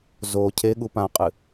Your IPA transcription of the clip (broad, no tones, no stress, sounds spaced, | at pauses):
z o cʰ e ɠ u p ã qʼ ɨ